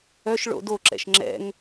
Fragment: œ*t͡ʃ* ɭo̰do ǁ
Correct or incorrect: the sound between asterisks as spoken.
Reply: incorrect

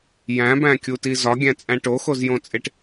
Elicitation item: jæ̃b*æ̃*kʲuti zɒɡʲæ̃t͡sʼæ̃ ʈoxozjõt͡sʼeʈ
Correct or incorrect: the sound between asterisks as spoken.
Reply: correct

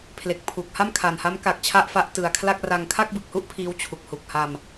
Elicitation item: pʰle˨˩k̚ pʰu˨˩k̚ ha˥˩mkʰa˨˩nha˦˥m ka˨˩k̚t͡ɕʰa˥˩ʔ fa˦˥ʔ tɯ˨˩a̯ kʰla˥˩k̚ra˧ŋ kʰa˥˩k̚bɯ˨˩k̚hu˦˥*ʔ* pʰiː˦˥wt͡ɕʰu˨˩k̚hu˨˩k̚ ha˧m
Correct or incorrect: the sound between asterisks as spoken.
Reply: correct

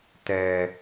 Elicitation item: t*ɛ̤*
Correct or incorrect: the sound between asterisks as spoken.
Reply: incorrect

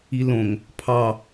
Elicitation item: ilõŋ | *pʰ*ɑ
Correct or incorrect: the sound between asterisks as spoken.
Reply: correct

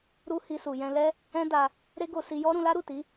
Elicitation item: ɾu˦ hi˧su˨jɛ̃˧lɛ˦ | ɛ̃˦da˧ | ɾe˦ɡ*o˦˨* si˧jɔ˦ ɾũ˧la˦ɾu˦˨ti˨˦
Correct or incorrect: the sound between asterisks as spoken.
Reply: incorrect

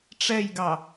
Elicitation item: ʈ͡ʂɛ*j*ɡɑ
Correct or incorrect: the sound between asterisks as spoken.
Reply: correct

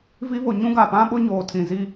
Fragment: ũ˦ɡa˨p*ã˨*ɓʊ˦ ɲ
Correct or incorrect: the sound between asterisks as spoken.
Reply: incorrect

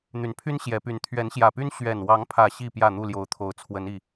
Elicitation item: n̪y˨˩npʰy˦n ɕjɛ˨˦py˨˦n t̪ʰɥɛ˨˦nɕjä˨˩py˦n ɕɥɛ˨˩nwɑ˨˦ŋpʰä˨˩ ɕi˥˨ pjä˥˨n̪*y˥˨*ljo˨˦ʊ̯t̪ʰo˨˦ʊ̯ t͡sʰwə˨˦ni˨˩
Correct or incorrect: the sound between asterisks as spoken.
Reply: incorrect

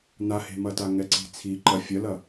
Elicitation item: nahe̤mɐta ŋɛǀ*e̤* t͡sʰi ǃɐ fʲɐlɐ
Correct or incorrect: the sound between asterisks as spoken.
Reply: incorrect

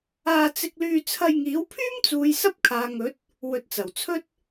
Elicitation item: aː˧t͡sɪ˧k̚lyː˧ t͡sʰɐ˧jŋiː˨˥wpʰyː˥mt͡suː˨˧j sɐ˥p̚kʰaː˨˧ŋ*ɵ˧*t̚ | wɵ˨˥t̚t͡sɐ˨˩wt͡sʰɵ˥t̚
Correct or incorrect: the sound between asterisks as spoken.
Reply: incorrect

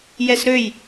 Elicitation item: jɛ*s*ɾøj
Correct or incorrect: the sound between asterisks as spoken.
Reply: correct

